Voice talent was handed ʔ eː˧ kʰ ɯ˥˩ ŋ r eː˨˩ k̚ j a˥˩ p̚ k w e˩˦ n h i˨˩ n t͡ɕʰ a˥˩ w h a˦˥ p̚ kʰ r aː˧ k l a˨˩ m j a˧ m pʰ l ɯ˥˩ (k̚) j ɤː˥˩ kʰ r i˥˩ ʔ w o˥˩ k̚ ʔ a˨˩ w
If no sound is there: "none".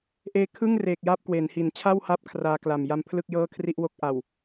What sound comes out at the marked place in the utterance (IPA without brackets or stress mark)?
k̚